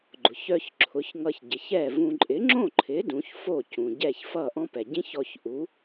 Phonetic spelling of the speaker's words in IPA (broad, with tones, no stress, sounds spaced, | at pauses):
ɡ͡ǃ ʊ˩ ç œ˧ ç ǁʰ ʊ˩˥ ç ŋ ʌ˧ ç ɟ ɪ˩ ç ɛ˥˩ v ũ˧ ǃʼ ɪ˩˥ ŋ͡ǁ õ˥˩ ǃʰ ɪ˩˥ d ũ˩˥ ç f o˥˩ c ũ˩ ɟ ɛ˥˩ ç f ʌ˥˩ ʔ ɔ̃˥ p ɛ˩ ɟ ĩ˥ ç ɔ˧ ç ʔ u˩˥